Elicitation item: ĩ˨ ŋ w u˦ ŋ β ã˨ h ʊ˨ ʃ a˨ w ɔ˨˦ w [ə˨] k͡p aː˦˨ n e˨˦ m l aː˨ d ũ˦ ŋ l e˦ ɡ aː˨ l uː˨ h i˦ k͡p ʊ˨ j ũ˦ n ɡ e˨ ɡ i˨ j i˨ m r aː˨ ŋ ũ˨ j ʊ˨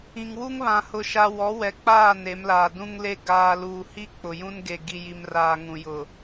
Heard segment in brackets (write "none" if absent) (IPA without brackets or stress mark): ɛ˨